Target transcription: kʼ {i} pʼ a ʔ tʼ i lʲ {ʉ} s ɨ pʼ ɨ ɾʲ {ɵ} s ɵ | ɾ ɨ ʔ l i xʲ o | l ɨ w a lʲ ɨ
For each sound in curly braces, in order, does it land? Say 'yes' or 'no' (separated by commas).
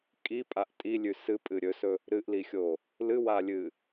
yes, yes, yes